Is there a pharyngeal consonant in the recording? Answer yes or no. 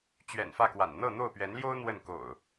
no